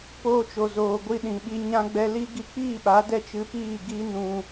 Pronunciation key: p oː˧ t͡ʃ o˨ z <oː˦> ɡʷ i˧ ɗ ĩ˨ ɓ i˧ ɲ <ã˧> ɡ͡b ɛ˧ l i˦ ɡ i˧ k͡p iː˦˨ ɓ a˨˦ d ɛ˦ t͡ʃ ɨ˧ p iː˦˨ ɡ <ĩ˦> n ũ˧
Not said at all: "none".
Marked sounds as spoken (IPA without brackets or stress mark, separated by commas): oː˨, ã˧, i˦